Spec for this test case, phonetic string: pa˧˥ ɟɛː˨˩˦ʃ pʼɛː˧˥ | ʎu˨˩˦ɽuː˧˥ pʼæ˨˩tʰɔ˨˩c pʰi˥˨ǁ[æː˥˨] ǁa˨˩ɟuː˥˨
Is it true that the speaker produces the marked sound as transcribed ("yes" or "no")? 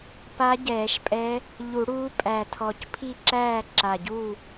yes